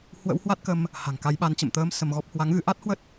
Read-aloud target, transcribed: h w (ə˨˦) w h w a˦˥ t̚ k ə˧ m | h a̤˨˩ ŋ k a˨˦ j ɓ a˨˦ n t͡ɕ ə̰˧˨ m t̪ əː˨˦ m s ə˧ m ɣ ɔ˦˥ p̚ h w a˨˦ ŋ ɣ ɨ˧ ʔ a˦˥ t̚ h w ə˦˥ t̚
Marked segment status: incorrect: ə̰˧˥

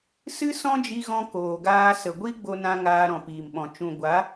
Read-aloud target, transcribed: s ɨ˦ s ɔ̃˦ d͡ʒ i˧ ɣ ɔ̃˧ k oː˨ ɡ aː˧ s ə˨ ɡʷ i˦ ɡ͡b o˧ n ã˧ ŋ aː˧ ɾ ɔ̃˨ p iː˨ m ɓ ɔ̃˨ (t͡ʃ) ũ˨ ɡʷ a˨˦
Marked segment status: correct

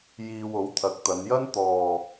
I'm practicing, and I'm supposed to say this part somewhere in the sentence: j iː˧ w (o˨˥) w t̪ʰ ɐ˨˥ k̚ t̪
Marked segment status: correct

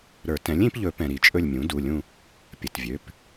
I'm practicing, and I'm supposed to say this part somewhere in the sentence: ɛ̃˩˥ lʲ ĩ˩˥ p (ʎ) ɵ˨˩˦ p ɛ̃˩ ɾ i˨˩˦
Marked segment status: correct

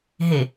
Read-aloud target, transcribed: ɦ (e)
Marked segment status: correct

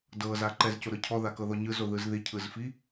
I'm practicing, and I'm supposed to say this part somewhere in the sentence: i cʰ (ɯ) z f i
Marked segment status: correct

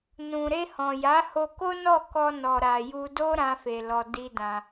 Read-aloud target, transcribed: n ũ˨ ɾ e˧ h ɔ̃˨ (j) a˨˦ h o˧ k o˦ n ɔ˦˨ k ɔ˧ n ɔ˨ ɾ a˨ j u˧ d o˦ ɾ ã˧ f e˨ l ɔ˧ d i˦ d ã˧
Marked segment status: correct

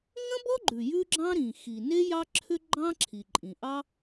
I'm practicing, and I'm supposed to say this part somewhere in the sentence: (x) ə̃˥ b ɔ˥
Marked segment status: incorrect: ŋ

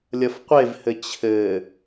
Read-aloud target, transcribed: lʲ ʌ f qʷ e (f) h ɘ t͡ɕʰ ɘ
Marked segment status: incorrect: v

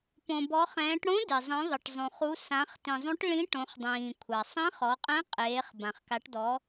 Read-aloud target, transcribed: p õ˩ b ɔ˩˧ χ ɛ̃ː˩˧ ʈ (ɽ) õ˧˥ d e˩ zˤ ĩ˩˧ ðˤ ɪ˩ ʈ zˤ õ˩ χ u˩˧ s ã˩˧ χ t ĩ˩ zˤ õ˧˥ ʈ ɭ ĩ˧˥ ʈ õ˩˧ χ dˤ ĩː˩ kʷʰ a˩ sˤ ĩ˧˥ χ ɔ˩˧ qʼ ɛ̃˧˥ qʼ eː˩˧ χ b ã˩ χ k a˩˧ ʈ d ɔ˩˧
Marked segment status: correct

